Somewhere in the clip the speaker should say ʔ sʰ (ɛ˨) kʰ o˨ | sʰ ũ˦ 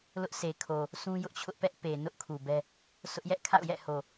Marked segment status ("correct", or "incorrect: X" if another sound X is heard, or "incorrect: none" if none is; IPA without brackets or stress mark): incorrect: e˨